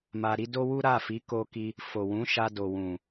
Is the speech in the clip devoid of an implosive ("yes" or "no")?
yes